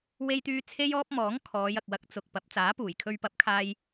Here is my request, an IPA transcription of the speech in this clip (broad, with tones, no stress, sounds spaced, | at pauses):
w e˥ j t̪ yː˥ t͡sʰ e˥ j ɔː˥ p̚ m ɔː˨˥ ŋ kʰ ɔː˨˧ j ɐ˨ k̚ w ɐ˨˥ k̚ t͡s ʊ˨ k̚ p ɐ˨˥ p̚ t͡s aː˨˥ p uː˨˩ j kʰ ɵ˧ ɥ p ɐ˨˥ p̚ kʰ aː˧ j